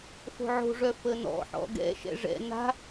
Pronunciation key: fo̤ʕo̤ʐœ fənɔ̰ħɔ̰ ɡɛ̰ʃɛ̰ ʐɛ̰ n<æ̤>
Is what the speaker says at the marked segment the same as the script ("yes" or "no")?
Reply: no